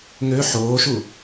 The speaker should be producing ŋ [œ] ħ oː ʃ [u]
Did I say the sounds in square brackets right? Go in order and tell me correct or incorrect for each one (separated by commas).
incorrect, correct